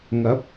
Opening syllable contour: rising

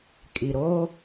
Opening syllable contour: low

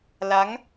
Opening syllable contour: rising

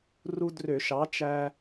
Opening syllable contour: high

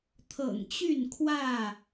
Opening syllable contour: low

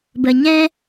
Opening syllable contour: low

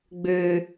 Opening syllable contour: low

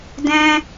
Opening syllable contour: high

